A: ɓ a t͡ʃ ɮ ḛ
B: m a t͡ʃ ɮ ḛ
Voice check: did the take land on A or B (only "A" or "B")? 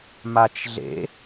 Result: B